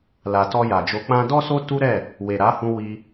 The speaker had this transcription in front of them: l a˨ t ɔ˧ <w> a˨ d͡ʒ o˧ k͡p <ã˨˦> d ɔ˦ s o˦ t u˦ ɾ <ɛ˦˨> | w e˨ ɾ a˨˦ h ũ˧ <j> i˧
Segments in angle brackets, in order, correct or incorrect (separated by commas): incorrect, incorrect, correct, incorrect